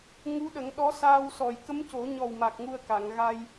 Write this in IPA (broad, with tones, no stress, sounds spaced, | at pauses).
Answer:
ŋ u˧˥ ɗ ə˨˩˦ ŋ ɗ ɔ˧˥ s aː˧ w s ɔ˨˩ j k ə˧˥ m c o˨˩˦ ɲ ɔ˨˩ w m a˨˩ k̚ ŋ u˧ ə̯ k a˨˩˨ ŋ ɣ a˧ j